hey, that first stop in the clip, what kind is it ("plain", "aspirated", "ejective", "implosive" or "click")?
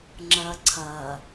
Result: click